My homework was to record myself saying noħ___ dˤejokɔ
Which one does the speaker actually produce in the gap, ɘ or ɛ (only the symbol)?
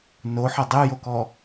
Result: ɛ